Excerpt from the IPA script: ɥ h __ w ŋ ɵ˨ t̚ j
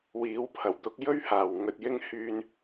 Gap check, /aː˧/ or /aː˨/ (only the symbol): aː˨